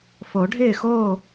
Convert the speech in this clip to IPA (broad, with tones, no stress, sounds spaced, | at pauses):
f o˨˩˦ ɖʱ ɪː˥˨ x oː˥˨